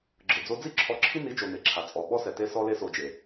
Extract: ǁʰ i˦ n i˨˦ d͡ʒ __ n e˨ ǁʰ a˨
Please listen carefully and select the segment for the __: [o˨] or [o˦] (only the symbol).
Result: o˨